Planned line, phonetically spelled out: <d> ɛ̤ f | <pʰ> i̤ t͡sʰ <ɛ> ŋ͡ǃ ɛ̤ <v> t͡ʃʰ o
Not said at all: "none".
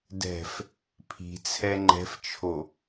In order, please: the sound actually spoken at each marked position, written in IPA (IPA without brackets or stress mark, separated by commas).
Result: d, pʰ, ɛ, f